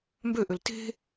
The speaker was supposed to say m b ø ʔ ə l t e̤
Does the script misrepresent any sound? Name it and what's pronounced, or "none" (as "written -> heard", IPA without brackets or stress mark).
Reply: ə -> ø